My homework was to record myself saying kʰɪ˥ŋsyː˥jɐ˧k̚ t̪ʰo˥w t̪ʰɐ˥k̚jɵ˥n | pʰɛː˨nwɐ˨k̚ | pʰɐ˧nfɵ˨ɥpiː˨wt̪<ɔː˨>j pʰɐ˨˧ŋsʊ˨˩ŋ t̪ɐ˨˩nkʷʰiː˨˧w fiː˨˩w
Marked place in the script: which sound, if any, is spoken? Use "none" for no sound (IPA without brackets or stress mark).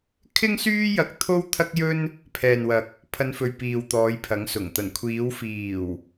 ɔː˨˧